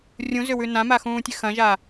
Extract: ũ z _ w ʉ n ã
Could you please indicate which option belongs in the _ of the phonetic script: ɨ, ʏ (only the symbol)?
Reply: ʏ